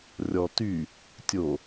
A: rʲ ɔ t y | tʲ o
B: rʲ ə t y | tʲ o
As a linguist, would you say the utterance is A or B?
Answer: A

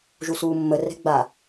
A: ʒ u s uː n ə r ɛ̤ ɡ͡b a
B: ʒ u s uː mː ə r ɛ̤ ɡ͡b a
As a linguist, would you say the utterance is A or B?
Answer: B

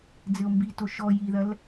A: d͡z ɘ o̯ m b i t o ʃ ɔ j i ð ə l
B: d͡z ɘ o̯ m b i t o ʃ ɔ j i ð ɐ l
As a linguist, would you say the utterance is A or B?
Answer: B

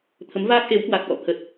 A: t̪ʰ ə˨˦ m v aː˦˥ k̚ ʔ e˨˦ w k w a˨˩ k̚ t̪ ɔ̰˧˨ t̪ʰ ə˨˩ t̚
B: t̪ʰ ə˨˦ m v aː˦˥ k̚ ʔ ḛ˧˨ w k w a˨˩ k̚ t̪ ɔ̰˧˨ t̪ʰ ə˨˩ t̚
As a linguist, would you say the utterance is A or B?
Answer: A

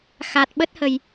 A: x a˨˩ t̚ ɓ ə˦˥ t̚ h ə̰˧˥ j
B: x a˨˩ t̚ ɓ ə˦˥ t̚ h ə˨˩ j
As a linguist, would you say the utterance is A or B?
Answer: B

